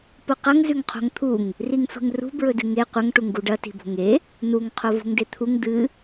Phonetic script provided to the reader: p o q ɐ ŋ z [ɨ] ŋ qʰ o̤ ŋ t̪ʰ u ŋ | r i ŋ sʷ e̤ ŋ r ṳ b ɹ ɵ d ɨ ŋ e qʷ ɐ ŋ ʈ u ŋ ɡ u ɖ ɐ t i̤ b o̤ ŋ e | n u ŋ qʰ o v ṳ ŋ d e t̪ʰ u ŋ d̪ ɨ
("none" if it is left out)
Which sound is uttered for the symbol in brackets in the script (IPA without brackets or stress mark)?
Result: ʉ